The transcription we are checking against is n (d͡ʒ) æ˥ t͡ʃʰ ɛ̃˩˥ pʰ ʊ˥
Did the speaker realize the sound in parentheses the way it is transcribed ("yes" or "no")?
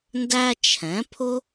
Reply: no